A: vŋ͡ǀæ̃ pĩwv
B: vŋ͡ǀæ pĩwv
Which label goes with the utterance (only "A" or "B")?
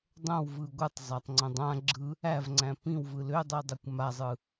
A